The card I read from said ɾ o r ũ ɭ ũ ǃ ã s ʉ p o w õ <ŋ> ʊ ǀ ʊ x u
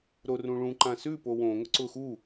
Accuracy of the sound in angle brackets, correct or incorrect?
correct